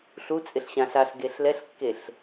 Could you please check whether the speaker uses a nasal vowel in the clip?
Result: yes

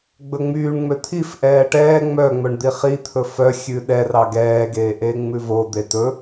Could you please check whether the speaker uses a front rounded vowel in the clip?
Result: yes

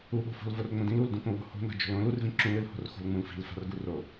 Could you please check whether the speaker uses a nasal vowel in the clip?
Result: yes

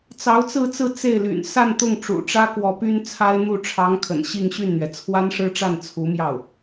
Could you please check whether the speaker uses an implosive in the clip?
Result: no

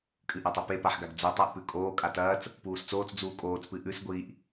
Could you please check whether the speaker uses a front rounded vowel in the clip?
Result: no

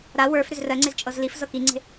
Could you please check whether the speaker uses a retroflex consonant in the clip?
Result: no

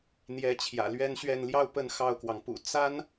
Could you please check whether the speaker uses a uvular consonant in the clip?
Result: no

